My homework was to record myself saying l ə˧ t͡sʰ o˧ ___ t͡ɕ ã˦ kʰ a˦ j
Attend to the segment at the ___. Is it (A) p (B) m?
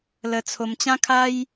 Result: B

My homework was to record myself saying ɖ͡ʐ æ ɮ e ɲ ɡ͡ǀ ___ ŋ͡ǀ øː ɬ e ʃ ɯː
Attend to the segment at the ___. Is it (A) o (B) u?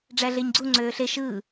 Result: B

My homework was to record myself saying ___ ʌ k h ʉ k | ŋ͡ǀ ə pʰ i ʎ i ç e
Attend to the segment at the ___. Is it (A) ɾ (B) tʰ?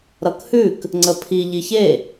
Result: A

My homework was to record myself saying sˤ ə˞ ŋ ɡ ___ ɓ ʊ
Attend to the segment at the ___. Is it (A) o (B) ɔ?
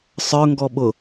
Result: B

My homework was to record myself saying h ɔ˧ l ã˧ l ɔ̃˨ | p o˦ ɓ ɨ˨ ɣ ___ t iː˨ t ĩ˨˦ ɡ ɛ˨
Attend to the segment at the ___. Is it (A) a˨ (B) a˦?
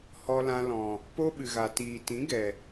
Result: A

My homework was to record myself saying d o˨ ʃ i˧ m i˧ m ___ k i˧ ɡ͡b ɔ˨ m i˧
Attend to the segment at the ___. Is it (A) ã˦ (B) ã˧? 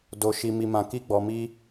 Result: B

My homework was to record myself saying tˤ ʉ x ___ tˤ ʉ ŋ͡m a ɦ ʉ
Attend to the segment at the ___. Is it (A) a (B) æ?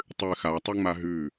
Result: A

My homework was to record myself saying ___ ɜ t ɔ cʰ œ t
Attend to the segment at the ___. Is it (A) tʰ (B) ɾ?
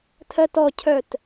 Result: A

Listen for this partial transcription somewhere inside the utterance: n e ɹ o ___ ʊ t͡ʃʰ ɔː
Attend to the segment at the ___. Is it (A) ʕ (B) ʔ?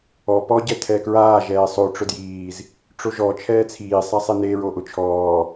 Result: B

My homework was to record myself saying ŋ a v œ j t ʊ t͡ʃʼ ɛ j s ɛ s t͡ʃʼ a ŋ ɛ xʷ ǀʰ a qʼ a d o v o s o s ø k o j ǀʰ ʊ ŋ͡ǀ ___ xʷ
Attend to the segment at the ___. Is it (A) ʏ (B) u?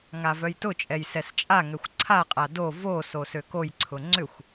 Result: A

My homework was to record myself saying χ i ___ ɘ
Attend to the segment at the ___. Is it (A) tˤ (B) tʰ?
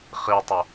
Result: A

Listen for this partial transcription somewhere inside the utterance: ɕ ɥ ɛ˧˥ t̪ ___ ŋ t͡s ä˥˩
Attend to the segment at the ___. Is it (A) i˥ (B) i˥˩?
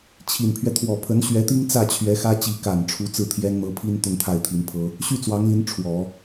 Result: A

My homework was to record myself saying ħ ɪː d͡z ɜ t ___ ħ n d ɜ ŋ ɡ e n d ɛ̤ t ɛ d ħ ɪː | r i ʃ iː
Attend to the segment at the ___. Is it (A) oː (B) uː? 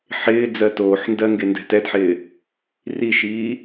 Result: A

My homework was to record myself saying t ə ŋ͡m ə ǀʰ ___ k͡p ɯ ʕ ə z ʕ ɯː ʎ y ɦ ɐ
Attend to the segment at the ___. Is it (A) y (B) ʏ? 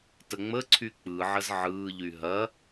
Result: A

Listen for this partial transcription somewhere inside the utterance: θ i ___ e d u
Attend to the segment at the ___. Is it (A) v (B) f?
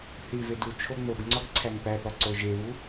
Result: A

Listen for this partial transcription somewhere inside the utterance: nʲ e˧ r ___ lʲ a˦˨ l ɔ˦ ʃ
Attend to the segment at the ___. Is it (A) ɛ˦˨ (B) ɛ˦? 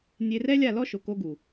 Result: B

